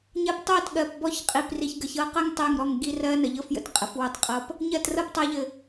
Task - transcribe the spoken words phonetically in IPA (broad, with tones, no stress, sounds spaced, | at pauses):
ɲ ɜ˧ p tˤ ɜ˦˨ t ɠ ɜ˨ p b ɔ˦˨ ç qʼ i˨ p r i˨ ç ɡ ə˨ ç ɤ˧ q ə˦ ŋ tˤ ɘ˦˨ ŋ ɾ ɔ˦˨ ŋ ɡ i˦ r ɜ˦ n ə˨ ʎ ɤ˦ f j ə̰˨ t qʼ ə˨ f w ɤ˧ tˤ qʼ ɤ˧ p | ɲ ɜ˦˨ t r ɤ˦ p tˤ ɜ˧ ʎ ɘ˨